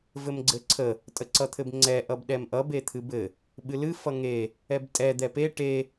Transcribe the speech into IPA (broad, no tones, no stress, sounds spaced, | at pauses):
v ɘ m ɡ͡ǀ ɘ ǀʰ ə | tʼ ə ǀ ʌ t̪ʰ ɘ b ŋ͡ǀ ɛ ʔ ʌ b ɗ ɛ m ʔ ʌ b e t̪ʰ ɨ b ɘ | ɓ ɨ l ɨ f ʌ ŋ e | ɛ b tʼ ɛ d̪ ɛ p e ʈ e